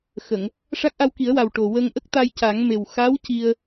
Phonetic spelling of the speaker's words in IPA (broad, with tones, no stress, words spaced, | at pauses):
xə˨˩˨ŋ | ʂa˦˥k̚ʔa˧wki˨˩˦ə̯wa˨˩w ʈo˨˩wə˧ŋ ʔə˦˥k̚t̪a˧j ca˨˩˦ŋme˨˩w xa˧˥w ci˧ə̯